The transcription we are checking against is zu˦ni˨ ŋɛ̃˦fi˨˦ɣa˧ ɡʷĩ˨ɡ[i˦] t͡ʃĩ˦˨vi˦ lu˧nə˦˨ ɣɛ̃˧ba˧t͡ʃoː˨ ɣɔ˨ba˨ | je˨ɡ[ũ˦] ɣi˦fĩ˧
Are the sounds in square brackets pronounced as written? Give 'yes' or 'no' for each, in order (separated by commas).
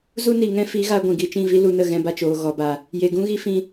no, yes